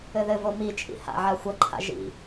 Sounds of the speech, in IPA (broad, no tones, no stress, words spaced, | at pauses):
ɘðɘvo mit͡ʃʼḭ ha̰ʕa xʷɐǃʰa̰ ʒḭ